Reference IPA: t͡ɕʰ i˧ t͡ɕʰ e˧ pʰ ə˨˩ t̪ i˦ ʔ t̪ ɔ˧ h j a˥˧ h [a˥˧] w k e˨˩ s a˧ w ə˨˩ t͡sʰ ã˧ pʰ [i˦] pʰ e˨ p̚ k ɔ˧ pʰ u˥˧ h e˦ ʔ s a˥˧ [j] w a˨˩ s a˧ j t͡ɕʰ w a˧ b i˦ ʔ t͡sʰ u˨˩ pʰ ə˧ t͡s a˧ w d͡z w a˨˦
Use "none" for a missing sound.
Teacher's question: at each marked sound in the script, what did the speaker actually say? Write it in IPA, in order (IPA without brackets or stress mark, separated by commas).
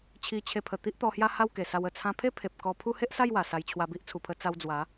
a˥˧, e˦, j